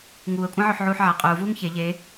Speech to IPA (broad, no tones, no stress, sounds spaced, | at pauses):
ŋ uː ə̯ kʷʼ ã ʕ ø ħ ʕ uː ħ ʕ a qʼ uː v uː ŋ ç e ʎ e